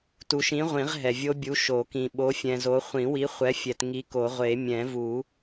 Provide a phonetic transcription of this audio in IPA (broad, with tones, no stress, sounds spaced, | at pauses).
t u˨ ʃ ĩ˨˥ ʁʷ ĩ˨˩˦ ʁ ɦ ɛ˨ vʲ o˦˥ bʲ u˨˥ ʃ o˨˩˦ k ĩ˨ ɓ o˨˥ fʲ ɛ̃˨ z o˨˥ χʷ ĩ˨˩˦ w i˨˥ χʷ ɛ˨˥ fʲ ɛ˨ t ŋ i˨˥ k o˨˩˦ ʁʷ e˨˩˦ mʲ ɛ̃˨˩˦ v u˨˩˦